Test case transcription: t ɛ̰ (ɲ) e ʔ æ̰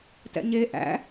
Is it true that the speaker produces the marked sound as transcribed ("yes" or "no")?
yes